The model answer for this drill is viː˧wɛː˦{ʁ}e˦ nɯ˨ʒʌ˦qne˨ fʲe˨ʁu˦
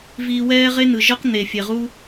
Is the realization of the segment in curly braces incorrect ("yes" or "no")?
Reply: no